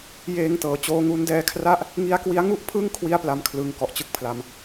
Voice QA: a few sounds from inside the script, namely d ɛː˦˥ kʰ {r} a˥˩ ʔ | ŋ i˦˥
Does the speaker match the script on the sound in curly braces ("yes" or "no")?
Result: yes